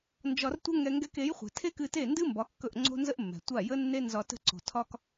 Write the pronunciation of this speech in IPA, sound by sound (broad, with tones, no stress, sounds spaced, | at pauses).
n d͡ʒ ɒ˧ r tʷ ə˥ ŋ ɛ˧ ŋ ɡ ɛ˧ k e˩˥ j χʷ ɛ̤˩ tʰ e˥ k ɨ˧ t e˥˩ n d ɨ˥ m b ɒ˩˥ kː ɵ˥˩ ʔ ŋ͡ǀ o̤˥ n z ə˥ ʔ mː ɛ̤˩ tʷ a˥˩ j ə˥ nː e˥ n z ɒ˧ t ə̤˥ ǀ o̤˩ tʰ ɒ˥ k